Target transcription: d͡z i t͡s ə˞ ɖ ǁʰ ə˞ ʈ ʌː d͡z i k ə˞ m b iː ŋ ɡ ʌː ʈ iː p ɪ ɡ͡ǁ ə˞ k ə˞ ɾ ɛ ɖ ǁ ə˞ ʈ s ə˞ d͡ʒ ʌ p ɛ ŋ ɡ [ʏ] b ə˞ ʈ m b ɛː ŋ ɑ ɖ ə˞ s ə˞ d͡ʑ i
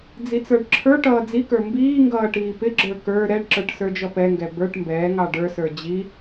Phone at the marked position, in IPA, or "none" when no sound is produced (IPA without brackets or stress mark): ɛ